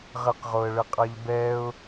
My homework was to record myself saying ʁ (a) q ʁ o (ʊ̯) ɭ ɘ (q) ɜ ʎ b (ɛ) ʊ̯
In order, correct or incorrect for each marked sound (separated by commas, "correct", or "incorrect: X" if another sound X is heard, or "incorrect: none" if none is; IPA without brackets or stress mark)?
incorrect: ə, incorrect: ə̯, incorrect: qʼ, correct